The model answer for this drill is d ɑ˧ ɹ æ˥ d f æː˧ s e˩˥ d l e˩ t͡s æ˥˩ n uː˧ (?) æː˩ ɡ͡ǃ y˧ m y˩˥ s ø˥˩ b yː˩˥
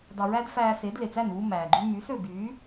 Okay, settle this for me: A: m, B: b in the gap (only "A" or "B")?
A